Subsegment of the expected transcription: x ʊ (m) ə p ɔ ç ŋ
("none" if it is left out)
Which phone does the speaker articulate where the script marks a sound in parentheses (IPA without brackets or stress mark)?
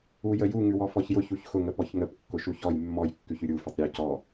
ŋ